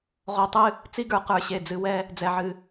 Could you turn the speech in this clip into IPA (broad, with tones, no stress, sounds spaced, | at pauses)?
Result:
ʁ o˧˩ tˤ ɨ˥˧ | t͡s i˥ ɡ ə˞˧ q ə˞˧˩ ɕ e˧˩ d͡z ɨ˧ w ɛ˥˧ | d͡z ɛ˧˩ ʕ ɨ˧˩